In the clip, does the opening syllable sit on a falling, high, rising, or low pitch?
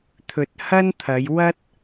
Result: low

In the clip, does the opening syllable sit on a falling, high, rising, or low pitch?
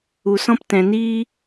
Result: low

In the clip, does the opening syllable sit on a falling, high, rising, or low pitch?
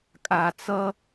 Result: low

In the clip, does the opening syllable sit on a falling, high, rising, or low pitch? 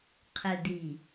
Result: low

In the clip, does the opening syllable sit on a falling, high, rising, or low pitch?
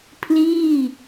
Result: falling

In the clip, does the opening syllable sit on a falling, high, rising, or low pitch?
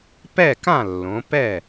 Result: falling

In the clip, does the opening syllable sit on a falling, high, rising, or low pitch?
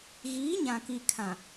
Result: rising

